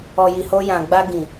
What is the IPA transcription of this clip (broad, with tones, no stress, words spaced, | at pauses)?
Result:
ɔ˨ji˨ ho˧jã˨ɡ͡ba˧ ɡĩ˨